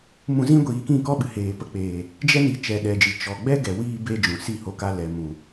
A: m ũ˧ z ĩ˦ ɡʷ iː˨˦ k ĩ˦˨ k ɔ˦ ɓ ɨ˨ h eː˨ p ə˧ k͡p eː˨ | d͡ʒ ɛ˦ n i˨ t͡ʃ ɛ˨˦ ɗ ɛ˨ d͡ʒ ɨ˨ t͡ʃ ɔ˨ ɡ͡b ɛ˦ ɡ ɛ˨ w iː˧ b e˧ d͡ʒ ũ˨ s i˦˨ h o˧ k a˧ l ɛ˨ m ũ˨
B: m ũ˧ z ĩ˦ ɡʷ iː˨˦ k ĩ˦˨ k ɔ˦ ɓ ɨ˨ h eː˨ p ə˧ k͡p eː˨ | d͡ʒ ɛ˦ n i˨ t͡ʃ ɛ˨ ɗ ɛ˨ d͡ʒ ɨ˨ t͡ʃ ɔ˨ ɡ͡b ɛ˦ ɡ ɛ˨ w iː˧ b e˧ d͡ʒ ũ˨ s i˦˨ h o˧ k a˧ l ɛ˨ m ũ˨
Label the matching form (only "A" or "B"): B